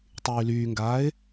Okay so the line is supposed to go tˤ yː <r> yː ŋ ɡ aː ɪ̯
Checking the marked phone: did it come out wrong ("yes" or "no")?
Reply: yes